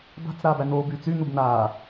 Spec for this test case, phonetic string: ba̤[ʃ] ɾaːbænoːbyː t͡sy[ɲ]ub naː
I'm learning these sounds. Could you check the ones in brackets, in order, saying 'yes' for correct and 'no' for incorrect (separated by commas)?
no, no